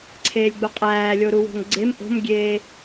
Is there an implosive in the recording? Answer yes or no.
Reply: no